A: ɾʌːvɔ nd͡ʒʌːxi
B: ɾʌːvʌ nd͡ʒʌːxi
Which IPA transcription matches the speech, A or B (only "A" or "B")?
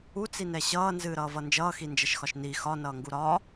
B